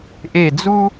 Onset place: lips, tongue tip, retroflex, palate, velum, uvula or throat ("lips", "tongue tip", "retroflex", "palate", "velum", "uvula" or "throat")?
throat